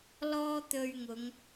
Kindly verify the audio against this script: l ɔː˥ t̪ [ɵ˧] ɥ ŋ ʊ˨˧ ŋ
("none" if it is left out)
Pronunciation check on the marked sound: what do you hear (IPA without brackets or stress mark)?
ɵ˧